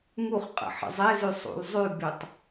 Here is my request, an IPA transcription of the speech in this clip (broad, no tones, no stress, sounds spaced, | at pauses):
ŋ u χ qʼ ə̰ ħ ə̰ zˤ e z ʉ sˤ ṵ l zˤ ʉ b y tˤ